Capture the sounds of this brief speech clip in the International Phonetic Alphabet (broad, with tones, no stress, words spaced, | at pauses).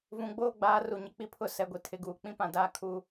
vũ˨ɡ͡boː˦ɡ͡baː˨˦ ru˨ɲɪ˨ k͡pi˦pʰʊ˦˨ sɛ˨ɡʷi˨ tʰɪ˨˦ɡuː˨ k͡pĩ˦pã˦˨ daː˦kʰu˦